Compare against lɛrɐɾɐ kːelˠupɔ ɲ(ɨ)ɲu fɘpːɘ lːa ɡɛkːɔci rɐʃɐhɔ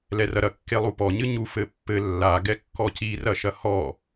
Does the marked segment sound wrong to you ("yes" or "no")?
no